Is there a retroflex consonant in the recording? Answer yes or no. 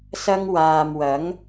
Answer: no